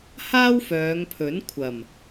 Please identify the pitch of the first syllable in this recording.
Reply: high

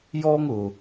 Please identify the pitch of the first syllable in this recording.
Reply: high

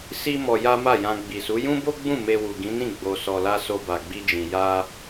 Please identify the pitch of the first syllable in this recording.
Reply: high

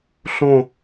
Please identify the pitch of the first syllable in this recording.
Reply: falling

